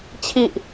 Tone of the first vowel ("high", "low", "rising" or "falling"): low